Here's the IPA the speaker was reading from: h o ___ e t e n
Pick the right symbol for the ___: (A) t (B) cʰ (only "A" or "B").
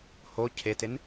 B